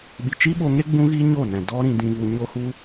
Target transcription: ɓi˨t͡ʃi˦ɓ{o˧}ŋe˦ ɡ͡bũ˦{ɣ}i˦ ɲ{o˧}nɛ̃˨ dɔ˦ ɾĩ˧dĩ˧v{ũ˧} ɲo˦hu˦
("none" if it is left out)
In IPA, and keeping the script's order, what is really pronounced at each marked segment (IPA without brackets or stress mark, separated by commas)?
o˧, ɣ, o˦˨, u˧